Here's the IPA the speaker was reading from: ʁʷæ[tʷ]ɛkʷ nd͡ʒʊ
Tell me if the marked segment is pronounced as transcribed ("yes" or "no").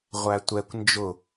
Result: yes